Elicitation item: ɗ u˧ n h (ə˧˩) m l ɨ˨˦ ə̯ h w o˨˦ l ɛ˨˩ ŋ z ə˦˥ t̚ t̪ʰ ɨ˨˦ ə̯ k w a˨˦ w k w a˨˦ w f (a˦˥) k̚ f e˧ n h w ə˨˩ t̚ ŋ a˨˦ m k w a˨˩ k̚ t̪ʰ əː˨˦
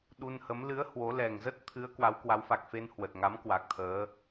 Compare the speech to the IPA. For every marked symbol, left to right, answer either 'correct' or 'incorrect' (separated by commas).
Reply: incorrect, incorrect